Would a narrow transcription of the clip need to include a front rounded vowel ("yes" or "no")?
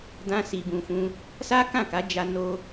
no